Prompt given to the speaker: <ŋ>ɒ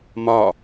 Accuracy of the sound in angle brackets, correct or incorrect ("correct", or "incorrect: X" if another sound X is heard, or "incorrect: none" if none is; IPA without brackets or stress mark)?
incorrect: m